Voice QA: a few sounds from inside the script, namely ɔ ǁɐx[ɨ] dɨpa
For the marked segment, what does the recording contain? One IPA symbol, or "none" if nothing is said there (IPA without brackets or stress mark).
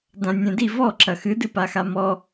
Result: ɨ